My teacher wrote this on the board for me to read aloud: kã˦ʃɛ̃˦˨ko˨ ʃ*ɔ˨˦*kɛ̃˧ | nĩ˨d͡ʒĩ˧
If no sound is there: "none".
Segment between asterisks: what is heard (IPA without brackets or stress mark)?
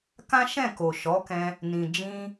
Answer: ɔ˨˦